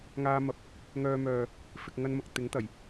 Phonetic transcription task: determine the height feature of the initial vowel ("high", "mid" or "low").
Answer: low